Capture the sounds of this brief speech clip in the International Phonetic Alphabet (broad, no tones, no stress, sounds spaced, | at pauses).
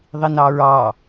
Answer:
ðˤ i n ɑ ɹ ɑ